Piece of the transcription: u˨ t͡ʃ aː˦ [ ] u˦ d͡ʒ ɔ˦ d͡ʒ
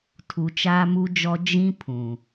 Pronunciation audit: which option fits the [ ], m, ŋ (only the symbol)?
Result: m